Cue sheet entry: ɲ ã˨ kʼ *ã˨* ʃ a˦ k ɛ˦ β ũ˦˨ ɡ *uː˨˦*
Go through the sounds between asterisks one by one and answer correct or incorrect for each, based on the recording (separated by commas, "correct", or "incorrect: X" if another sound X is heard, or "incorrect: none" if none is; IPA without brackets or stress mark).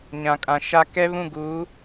correct, correct